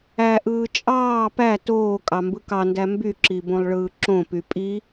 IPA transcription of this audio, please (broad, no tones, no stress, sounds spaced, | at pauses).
æ ʔ ɯː t͡ʃʼ ɑː p æ t oː kʼ ɑ m b ɯ k ɑ n d æ m b y ǁ i b õ lˠ ɭ ɯː ǁ õ p y pʼ i